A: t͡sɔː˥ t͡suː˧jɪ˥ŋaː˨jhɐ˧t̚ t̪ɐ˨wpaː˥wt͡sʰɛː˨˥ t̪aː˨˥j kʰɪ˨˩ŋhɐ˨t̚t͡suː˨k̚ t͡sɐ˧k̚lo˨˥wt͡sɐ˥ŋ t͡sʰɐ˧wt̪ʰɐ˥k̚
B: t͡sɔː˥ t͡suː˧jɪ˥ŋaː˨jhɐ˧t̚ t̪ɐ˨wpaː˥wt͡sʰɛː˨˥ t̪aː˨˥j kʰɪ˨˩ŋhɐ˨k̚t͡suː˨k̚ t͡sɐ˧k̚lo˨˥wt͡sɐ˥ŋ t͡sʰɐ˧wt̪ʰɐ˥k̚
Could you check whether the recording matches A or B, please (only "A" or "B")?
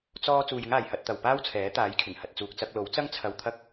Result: A